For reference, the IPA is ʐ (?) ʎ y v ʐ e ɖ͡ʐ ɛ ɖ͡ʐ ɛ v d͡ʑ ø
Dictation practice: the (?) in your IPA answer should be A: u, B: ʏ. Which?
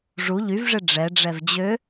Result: A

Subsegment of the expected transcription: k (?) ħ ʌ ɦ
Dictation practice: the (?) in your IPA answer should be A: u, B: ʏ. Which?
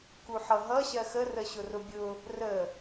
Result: A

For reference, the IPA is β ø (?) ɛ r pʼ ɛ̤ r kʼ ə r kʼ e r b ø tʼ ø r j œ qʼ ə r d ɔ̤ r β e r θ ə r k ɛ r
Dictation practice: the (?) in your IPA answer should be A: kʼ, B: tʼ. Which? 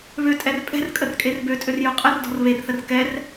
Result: B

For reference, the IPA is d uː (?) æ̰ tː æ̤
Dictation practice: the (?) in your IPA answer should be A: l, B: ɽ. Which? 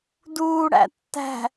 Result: B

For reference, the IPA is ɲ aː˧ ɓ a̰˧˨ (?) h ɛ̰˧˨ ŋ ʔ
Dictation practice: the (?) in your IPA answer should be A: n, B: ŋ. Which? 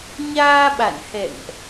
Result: A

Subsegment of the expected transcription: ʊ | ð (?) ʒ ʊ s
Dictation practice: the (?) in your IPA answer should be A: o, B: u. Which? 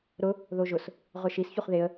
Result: A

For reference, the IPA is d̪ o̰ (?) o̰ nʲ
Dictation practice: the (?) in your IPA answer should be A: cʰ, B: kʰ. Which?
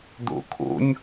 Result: B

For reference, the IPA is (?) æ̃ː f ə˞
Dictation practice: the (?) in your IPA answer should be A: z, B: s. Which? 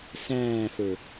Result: B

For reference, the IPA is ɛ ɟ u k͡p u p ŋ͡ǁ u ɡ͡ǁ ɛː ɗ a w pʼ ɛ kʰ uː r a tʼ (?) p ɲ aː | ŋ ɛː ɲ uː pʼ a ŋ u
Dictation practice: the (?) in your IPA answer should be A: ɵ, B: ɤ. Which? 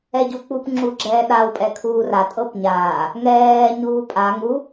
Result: B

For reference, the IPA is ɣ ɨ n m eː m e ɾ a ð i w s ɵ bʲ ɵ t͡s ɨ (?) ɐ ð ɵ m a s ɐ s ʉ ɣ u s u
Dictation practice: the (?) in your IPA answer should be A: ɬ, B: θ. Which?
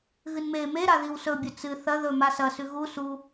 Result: B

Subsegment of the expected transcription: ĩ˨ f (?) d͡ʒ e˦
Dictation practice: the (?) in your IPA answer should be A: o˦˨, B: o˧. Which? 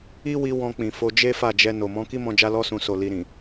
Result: B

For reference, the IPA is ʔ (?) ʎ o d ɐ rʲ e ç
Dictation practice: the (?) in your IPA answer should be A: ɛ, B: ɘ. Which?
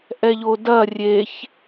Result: A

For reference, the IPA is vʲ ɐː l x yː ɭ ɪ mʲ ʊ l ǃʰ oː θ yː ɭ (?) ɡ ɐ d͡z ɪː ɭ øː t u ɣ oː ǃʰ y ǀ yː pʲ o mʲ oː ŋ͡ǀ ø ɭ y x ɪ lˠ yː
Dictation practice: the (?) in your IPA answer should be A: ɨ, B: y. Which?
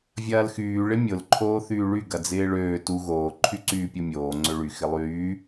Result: B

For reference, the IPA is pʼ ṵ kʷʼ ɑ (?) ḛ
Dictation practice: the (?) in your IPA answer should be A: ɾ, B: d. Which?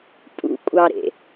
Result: A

